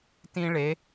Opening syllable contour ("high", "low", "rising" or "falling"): high